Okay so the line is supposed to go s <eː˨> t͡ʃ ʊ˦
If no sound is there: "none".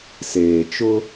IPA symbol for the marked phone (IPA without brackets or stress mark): eː˨